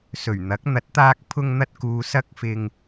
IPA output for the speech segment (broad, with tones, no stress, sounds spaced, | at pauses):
s ɵ˨˩ ɥ n̪ ɐ˨˥ k̚ n̪ ɐ˨˥ t̚ t̪ aː˧ k̚ pʰ ʊ˧ ŋ n̪ ɐ˧ t̚ k uː˨ s ɐ˧ k̚ f ɪ˨ ŋ